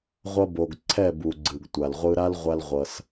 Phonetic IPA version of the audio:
ʁʷʌ˧bo˨ɡ ǀʰɛ˦˨bu˨ɡ͡ǀɯ˨ɡ tʷa˨lʁʷɯ˧ɾa˦l ʁʷa˦lʁʷʌ˧s

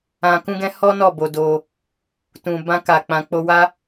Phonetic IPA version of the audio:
ã˨kũ˧ɡɛ̃˧ hɔ˦ nɔ˦˨ bo˧do˧ | tũ˨ bã˧ka˨k͡pã˨ k͡po˧wa˦

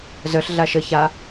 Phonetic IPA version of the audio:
zœɬ ɮaʃə ça

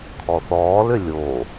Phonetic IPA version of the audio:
kʰɔθɔːlʏ lʲo

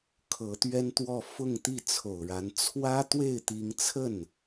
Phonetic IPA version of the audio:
kʰɤ˧˥t̪ɥɛ˥nt̪wɔ˥˧ fʊ˥˧ŋt̪i˥˩t͡sʰo˨˩ʊ̯ɻa˧˥n t͡sʰwä˥t̪we˥˩ɪ̯ t̪i˥ŋ t͡sʰə˥˩n

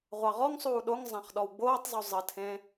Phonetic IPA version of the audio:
ʁʷɑʁɔŋsˤuː ɗoŋ zˤãχɗɔwɡ͡boːtˤzˤu zˤətʰẽ

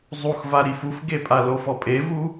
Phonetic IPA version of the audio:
zˤuxva ɾifufɡepʼa lofɔpʼevu

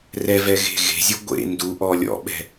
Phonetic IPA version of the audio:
rɛvɛɣe̤ ɣe̤zʲu ɡʷḛ nduʔɔ lʲɔ̰ɓɛ̤

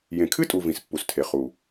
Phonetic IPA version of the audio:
jẽ˨kʰɨ˦tʼu˨ vĩ˨s pːu˨stʰe˨ χu˨

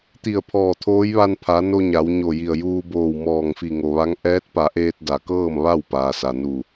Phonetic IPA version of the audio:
t̪i˧˩ə̯pʰɔː˧˩t̪ʰoː˧˥jʋa˧n pʰa˩˧ no˧ ɲa˩˧wɲo˧˩ji˧˩ə̯ juː˧boː˧˩w mɔː˧˩ŋfi˧˩ŋo˩ʋa˧˥ŋ ʔɛː˧˥t̚pa˩˧ʔeː˧t̚ da˩kɤː˥˨mʋa˥˨w paː˩sa˩nu˧˩

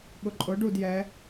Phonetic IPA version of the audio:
ɠʊǃʼʊ ɖud jɛ

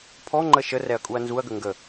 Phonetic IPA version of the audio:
pʰɔŋ͡ǃə ʃərɛɐ̯kʼuɐ̯ nzuɐ̯ɡə ŋɡə

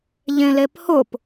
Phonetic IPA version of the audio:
ʎẽlephʊp

